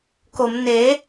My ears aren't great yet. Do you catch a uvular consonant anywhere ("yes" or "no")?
no